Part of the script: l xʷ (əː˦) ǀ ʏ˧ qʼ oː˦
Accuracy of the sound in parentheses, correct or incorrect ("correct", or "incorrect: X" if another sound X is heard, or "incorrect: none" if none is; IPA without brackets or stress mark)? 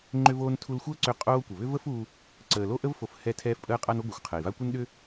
correct